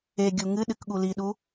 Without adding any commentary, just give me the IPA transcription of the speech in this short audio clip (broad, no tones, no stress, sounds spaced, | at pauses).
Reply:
e ɡʲ u ŋ ɨ ɗ ɨ k ɠ u l i ɗ u